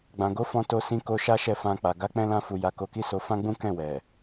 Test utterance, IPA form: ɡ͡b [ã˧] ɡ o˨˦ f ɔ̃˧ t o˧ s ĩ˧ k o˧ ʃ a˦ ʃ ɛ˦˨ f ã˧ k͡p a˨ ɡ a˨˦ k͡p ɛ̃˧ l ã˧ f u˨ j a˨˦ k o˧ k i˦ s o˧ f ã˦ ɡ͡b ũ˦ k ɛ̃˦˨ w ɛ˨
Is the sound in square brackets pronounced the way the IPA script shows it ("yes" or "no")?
no